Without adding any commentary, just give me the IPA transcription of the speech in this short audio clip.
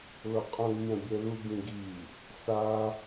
l o qʼ õ ɡ mʲ ã bʲ ɛ l u ɡ ĩ ɡ i | s a

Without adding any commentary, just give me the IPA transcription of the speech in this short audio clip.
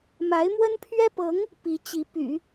m a˧˥ ɪ̯ m w ə˥ n pʰ ɥ ɛ˥ p ɤ˧˥ ŋ | p i˧˥ t͡ɕ i˧˥ p y̰˨˩˦

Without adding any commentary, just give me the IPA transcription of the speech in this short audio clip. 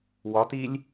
w ɒ t i lʲ

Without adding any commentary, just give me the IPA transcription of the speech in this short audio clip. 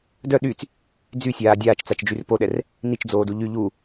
d œ ɗ y t͡s | d͡z y sʲ aː dʲ aː t͡ʃ t͡s a t͡ʃ d͡ʒ y r p o ɗ ɛ r | n i t͡ʃ d͡z oː d u ʎ y ʎ u

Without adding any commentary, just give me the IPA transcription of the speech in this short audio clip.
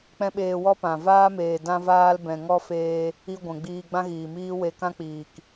k͡p ɛ̃˦ ɓ eː˧ w ɔ˦ p ã˨ v aː˦ m eː˨ d ã˦ v aː˦ l b ɛ̃˨ ŋ ɔ˦ f eː˧ | i˦ ɡʷ ɛ̃˨ ɡ͡b iː˧ ɡ͡b ã˦ ɣ iː˨ m iː˦ w e˧ k ã˦ k͡p iː˨ k

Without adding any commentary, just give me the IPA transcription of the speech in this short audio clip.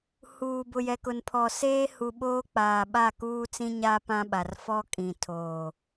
h uː˨ b ʊ˨ j ɛ˨ k ʊ˨ n pʰ ɔ˨ s eː˦ h u˨ ɓ oː˦ k͡p aː˨ ɓ a˦˨ k uː˦ t͡s ĩ˦ ɲ a˦ p ã˦ ɓ a˨ r f ɔ˦ kʼ ĩ˨ tʰ oː˨

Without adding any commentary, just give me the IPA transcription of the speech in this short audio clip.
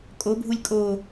kʼ o bʱ u lʲ kʼ o

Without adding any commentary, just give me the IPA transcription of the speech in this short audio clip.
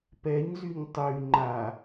p ɛ ɲ z y ɲ tˤ y ŋ͡ǃ a

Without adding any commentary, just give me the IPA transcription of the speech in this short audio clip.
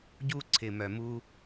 ɟ u˥ ǀʰ ɪ˨ m œ˨ m u˥

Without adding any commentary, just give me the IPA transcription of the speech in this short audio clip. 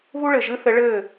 β u˦ ɭ ɘ˨ ʒ ɨ˦ θ ɘ˨˦ ɭ ɘː˦˨

